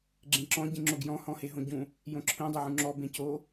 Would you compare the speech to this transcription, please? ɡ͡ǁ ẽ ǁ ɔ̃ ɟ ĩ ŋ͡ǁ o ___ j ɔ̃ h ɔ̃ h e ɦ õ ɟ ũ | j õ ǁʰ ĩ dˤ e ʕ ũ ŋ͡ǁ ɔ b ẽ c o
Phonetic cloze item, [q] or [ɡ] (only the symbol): ɡ